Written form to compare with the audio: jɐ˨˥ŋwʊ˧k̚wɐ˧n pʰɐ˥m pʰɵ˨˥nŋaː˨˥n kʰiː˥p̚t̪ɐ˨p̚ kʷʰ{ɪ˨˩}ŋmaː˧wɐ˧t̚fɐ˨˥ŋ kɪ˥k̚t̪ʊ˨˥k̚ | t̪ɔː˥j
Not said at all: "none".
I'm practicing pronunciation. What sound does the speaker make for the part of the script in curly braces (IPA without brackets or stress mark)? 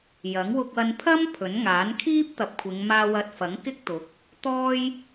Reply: ɪ˨˧